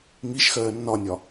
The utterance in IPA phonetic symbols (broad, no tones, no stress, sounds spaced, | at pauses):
ŋ i ʃ x ɜː nː ɒ nʲ ɒ